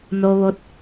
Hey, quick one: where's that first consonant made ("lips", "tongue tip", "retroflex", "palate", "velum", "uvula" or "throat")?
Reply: tongue tip